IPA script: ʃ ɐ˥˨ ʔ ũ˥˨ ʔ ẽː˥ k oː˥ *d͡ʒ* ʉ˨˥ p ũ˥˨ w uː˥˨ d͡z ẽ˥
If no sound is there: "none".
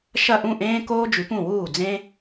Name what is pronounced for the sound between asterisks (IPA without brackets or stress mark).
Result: d͡ʒ